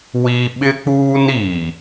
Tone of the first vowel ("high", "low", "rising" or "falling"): high